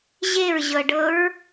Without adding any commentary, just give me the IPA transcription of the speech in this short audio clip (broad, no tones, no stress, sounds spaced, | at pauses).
ʑ e ɹ ʑ ɤ ɖ ɤ ɹ